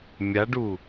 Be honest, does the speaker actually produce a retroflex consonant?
yes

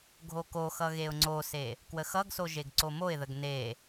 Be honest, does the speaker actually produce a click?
yes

